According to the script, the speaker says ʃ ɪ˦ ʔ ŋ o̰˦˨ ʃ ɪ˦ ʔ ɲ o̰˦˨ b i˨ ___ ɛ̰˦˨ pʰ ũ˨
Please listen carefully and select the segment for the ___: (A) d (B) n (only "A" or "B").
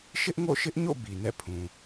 B